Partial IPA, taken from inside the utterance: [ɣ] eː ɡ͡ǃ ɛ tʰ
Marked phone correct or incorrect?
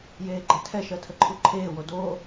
incorrect